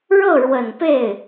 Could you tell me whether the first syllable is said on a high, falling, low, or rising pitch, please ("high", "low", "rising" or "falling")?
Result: falling